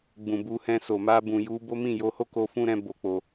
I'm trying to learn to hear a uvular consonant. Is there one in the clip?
no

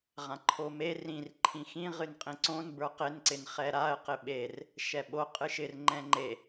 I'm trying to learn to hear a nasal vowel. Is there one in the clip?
yes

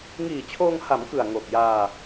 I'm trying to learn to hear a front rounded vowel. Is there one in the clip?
no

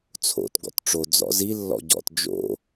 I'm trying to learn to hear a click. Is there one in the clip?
no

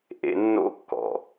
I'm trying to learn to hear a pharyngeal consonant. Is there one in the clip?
no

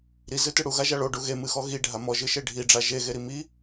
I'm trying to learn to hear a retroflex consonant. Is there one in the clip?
yes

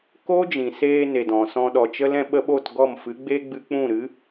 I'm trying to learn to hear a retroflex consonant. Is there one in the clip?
no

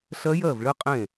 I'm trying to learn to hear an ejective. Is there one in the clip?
yes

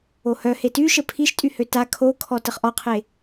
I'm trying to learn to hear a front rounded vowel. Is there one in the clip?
yes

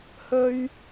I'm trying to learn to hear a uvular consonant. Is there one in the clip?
no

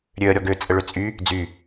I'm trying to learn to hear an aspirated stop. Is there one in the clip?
no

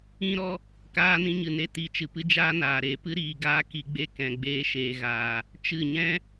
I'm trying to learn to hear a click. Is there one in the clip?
no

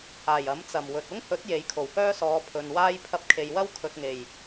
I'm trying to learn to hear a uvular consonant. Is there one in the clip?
no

